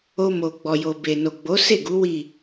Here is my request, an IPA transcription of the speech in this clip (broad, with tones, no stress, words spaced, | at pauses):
o˧ mo˨ ɡ͡bɔ˨jo˨be˨no˨ ɡ͡bo˨˦se˦˨ ɡu˨˦ wi˦˨